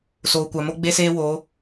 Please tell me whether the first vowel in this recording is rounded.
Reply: yes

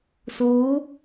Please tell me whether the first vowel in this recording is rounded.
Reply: yes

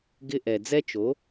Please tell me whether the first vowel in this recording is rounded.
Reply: no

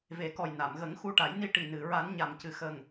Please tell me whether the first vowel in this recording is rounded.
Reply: no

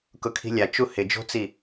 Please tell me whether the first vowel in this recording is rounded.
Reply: yes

